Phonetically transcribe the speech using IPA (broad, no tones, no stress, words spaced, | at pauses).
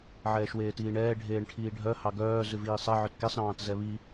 ʕɛːʃweːtiːɳɛː ɖʱeːɳʈʰiːɖʱœ hɑɡœː zʉviːsˤɛ ʕœtkesˤ ɾɑ̃ːtzɛβi